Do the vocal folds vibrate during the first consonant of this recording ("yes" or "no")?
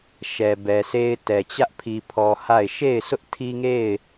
no